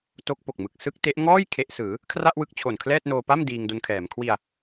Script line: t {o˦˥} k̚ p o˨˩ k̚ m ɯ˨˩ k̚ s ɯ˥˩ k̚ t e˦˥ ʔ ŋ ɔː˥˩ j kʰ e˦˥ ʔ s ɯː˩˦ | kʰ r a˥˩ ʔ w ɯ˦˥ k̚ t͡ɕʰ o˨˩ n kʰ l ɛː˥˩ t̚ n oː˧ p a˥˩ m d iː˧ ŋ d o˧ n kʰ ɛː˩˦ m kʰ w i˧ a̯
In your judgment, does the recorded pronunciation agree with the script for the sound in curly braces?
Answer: yes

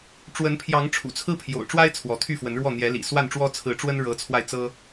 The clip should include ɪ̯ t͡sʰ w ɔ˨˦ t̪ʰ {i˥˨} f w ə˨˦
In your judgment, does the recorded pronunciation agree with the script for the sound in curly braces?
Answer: no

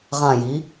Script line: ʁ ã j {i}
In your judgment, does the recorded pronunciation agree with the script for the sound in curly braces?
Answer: yes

